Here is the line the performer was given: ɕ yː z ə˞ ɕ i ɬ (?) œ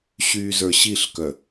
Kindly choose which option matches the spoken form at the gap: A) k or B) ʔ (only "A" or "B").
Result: A